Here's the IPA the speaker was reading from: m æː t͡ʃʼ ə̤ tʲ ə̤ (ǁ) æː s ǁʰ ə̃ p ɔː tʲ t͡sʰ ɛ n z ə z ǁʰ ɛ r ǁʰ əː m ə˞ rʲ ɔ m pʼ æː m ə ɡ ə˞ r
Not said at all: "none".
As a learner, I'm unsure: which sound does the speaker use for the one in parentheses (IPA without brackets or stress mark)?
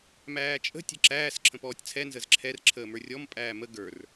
ǁ